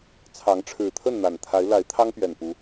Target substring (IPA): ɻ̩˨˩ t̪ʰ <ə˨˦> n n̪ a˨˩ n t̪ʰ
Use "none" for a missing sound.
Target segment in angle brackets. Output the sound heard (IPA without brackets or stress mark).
ə˥˨